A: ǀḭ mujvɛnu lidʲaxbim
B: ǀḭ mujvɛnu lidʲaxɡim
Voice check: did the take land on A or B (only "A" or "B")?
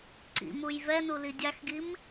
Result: B